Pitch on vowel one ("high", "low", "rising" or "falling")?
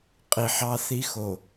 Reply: low